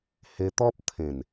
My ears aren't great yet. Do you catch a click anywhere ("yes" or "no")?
no